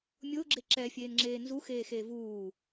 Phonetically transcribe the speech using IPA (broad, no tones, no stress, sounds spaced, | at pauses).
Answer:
mʲ ʊː ɡ͡ǁ e ǁ ɛ fʲ eː n ŋ͡ǁ eː n z u x eː x eː v uː